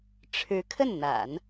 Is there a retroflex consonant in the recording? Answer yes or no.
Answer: yes